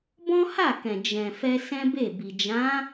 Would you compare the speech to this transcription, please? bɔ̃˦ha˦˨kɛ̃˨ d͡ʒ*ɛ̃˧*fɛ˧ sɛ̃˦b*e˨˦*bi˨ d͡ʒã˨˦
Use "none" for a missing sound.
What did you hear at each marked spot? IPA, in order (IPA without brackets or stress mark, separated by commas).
ɛ̃˨, e˦˨